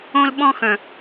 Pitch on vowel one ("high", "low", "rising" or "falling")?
high